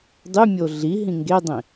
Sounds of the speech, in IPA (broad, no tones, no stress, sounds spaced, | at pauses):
dˤ y mʲ o ɮ i ɦ ĩ ŋ ɡ e dˤ ĩ